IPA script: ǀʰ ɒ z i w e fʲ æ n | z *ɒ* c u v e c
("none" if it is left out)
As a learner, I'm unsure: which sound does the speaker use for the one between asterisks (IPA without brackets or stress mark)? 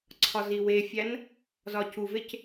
ɒ